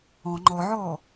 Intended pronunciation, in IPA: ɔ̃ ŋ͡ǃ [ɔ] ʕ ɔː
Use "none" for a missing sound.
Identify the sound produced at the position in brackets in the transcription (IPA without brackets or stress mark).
ɔ